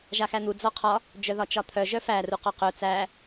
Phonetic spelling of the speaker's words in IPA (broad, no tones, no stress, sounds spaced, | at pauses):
ʒ a x æ n̪ u d͡z ɔ qʰ ɒ | d͡ʒ œ ð ɒ t͡ʃ ɒ t̪ʰ œ ʒ œ f æ r u q ɔ q œ t͡s æ